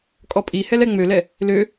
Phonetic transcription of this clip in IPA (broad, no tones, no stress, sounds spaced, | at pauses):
kʼ ɔ pʼ i h ɛ l ɛ ŋ͡m ø l ɛ | l ø